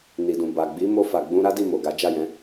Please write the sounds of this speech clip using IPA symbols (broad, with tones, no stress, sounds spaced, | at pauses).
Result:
n i˨ d ũ˨ b a˨ ɡ͡b i˨˦ m o˧ f a˨ ɡ͡b ũ˧ ɾ a˦ d i˦˨ m o˨ ɡ a˨˦ d͡ʒ a˦˨ j ɛ̃˨˦